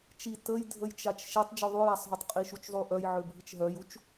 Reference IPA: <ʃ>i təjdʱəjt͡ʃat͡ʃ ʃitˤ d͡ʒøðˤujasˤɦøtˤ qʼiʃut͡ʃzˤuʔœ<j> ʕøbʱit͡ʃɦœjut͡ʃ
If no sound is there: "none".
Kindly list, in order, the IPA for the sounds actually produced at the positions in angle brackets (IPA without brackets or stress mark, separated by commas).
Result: t͡ʃ, j